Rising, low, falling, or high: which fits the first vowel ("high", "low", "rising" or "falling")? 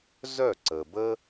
falling